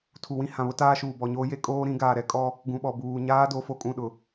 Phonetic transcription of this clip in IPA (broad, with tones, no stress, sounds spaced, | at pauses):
tʰ u˨ w ĩ˦ h ã˨ β ʊ˦ t aː˦ ʃ uː˨ b ɔ˨ ɲ oː˦ j e˦ kʼ oː˦ ɾ ĩ˨˦ ɡ aː˨ ɾ ɛ˦ kʼ ɔ˦ | ɡ ũ˨ ɓ ɔ˨ b uː˨ ɲ aː˦ d o˨˦ f o˨ kʼ ũ˦˨ ɗ ʊ˨